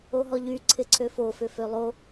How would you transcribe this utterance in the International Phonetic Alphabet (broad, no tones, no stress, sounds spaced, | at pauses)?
o ɦ ɔ ʎ y ǀʰ ɪ ǀʰ ø f o f ʏ f ø lˠ o